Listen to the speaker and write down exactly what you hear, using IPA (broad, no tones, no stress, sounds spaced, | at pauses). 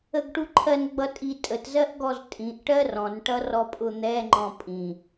ə ɡ ʈ u ǃʰ ɜ n ɡ͡b ʌ tʼ i tʼ ə t z ɜ ʔ ɡ ɔ z tʼ ĩ ʔ ʈ ɜ r ɔ̃ n ʈ ʌ r ɔ pʼ ʊ n̪ ɛ ŋ͡ǃ ɔ̃ pʼ ĩ